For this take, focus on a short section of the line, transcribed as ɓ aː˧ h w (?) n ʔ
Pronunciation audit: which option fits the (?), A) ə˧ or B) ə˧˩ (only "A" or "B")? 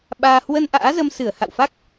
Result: A